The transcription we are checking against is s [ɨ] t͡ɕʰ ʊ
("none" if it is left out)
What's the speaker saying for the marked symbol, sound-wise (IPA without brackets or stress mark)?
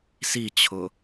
i